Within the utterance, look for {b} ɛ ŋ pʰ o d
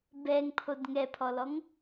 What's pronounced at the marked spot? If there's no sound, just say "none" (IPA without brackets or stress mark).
b